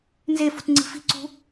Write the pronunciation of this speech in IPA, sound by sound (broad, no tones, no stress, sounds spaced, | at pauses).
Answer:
n z e f ṳ t ŋ͡ǀ i̤ f i̤ ǀ ṳ